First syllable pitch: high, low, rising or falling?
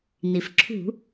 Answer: low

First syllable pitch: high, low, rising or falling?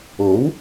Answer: rising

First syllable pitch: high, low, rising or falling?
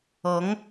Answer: rising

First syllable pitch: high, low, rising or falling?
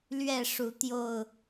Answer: falling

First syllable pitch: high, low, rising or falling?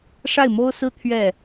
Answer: falling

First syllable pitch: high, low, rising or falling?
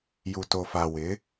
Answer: low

